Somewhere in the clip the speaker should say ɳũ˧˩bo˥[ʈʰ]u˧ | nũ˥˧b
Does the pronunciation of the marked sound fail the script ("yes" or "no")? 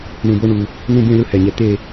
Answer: yes